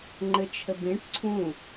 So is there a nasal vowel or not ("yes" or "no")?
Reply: yes